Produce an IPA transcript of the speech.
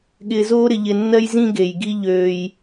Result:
ɠ ɪː˧ z oː˦ ɾ ɪ˧ ʎ ɪ˧ nː ɜ˦ j z ĩ˦ ɡ e˨ j ɡ i˦ ʎ øː˦ j

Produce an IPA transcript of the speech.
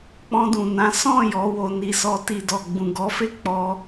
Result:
k͡p ɔ̃˧ d ũ˨ n ã˨˦ s ɔ̃˦˨ j ɔ˨˦ w o˧ n i˧ s ɔ˧ t i˨ d ɔ˨ ɡ͡b ũ˨ ɡ ɔ˨˦ f e˦˨ k͡p ɔ˧

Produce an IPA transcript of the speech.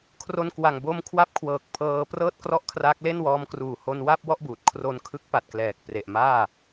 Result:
kʰ r o˧ n k w a˨˩ ŋ b o˧ m kʰ w a˦˥ p̚ kʰ w ɤː˨˩ k̚ pʰ ɤː˧ p r ɤː˥˩ t̚ k r ɔ˥˩ ʔ kʰ r aː˦˥ k̚ l e˥˩ n w ɔː˦˥ m k r uː˨˩ h o˧ n w a˥˩ p̚ w ɔ˥˩ ʔ b uː˨˩ t̚ kʰ r o˧ n kʰ ɯ˦˥ k̚ p a˨˩ t̚ k l ɛː˨˩ k̚ p r e˨˩ ʔ m aː˥˩

